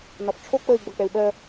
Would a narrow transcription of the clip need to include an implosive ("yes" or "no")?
yes